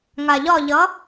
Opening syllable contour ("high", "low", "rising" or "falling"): low